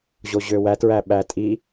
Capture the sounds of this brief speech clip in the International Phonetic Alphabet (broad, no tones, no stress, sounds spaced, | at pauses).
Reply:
ʑ o ʑ ø w æ t ɹ æ ɓ æ tʼ i